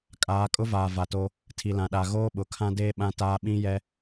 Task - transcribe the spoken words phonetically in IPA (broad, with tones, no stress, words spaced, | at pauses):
kʼaː˨˦kʼʊ˦vaː˨ va˨to˦ | tʰi˨lã˨ɗa˨ ɣoː˦ɓʊ˨kʰã˦deː˦ ɓã˦taː˦ ɓĩ˦jɛ˦